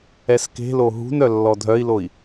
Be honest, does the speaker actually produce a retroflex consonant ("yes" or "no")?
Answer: no